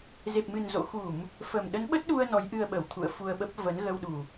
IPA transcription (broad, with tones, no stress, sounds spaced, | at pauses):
z e˨˩ p̚ m ɨ˨˩ n z o̰˧˨ x u˧˩˨ m | f ə˨˩ m ɗ ə˨˦ n ɓ ə˦˥ t̚ ɗ u˧ ə̯ n ɔ˨˦ j ʔ ɨ˧ ə̯ ɓ ə˧˩ w t̪ʰ ṵ˧˨ ə̯ f u˧ ə̯ ɓ ə˦˥ p̚ v ə˨˦ n ɣ ə˧ w ɗ u˨˩